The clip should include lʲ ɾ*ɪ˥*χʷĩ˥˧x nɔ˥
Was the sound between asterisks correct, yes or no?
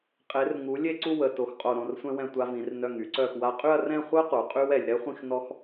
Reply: no